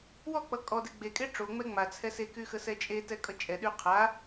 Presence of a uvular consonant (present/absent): present